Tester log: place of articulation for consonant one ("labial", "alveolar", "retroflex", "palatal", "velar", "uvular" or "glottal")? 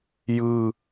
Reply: palatal